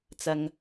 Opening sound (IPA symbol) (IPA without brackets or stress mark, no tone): t͡s